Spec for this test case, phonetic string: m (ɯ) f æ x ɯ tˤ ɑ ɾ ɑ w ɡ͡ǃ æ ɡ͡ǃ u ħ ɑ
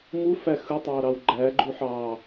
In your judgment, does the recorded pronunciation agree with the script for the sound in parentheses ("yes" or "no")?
no